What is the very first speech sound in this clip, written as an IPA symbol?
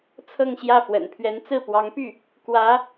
t͡sʰ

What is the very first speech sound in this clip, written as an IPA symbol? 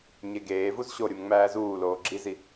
ɲ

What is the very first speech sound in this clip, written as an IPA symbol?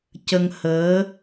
c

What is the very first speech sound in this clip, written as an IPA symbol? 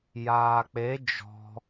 j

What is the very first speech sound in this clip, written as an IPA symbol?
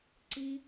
ǀ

